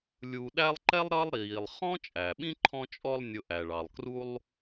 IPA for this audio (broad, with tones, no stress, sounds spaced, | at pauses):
lʲ u˨ ɗ æ˦ lˠ ǃ ɛ˥ lˠ ɾ ʌ˦ lˠ ɾ iː˩ lˠ χ ɔ̃˥ t͡ʃʼ æ˩ ɓ ĩ˥ ǃʰ ɔ̃˦ t͡ʃʼ ɔ˦ lˠ nʲ ʊ˨ ʔ æ˩ ɭ ɑ˩ lˠ k r u˦ lˠ